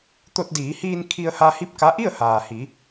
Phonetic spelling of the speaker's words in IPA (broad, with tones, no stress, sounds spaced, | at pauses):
t̪ o˧ t̚ d iː˩˧ h iː˧ n kʰ i˧ ə̯ h a˧ h i˥˨ p̚ k a˧˥ ʔ i˥˨ ə̯ h aː˩ h i˩˧